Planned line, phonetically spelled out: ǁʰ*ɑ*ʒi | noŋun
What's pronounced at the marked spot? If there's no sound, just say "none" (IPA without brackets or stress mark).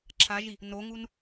a